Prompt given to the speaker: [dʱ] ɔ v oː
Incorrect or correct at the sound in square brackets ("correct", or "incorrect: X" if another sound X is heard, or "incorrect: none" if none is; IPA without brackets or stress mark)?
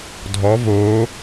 correct